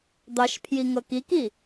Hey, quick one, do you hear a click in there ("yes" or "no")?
no